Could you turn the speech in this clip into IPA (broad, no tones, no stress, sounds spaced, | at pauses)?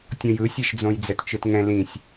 tʲ ɔ̃ j ɯ sʲ ɛ ʃ d͡z õ j d͡z ɛ t t͡ʃ ɯ t ŋ ɛ̃ l ĩ sʲ